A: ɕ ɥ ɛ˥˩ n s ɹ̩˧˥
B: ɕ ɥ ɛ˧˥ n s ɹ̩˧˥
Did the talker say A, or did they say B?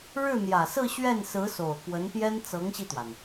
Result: A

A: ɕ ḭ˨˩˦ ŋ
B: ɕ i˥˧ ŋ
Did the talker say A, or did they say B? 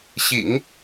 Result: A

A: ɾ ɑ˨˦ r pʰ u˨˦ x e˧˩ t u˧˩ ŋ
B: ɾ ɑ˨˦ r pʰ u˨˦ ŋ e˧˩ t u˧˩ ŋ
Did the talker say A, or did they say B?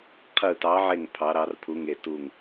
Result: B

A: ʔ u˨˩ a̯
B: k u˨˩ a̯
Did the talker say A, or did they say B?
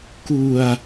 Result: B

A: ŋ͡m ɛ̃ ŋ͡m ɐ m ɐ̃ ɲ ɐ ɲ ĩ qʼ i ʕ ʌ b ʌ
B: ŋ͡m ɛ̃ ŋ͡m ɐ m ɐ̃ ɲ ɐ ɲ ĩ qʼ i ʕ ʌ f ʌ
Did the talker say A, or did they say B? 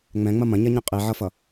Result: B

